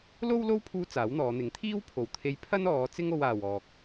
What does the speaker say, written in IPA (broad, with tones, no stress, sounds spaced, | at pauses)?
l o˥ w l o˥ w pʰ uː˥ t͡s aː˨˥ w n̪ ɔː˨˧ n̪ ɪ˨˥ ŋ t̪ʰ iː˥ w pʰ o˨˩ w t̪ʰ e˧ j pʰ ɐ˥ n ɔː˨˧ t͡s ɪ˥ ŋ o˧ w aː˨ w ɔː˨ k̚